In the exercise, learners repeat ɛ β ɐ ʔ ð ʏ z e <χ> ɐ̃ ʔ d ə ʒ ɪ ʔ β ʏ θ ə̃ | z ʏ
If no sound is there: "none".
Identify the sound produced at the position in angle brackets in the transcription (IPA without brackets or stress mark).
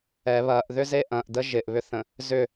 ʔ